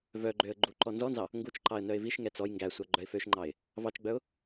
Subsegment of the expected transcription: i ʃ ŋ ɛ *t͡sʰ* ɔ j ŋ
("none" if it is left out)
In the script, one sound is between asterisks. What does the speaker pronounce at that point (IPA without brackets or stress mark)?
t͡s